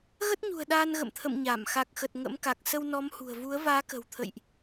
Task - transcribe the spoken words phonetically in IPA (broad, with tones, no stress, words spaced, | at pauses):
ɣə˦˥t̚ɲṳ˨˩ə̯ ɗaː˧nɣə̰˧˨mt̪ʰə̰˧˨m ɲa˧˩m xa˨˩k̚xə˨˩t̚ ŋə̰˧˥mka˨˩k̚ sə˧wnɔ˨˦mhṳ˨˩ə̯vu˨˦ə̯ vaː˨˦kə̤˨˩wt̪ʰə̰˧˨jʔ